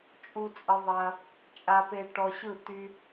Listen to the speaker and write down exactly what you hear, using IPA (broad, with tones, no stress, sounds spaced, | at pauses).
t͡ʃʼ u˦ t͡sʼ ə˦ ðˤ ɐ˦ | t͡ʃʼ a˦ p e˦ ʈ ɔ˧ ɕ ɯ˦˨ t̪ y˦